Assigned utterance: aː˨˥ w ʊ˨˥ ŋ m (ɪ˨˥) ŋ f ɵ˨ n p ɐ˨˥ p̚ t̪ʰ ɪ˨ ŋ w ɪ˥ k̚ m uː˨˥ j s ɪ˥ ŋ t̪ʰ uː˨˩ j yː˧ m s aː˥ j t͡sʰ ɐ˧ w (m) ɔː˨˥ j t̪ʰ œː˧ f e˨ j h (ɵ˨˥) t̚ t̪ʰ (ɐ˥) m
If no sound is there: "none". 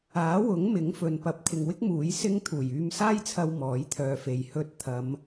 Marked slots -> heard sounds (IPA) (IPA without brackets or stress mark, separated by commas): ɪ˨˥, m, ɵ˧, ɐ˨˧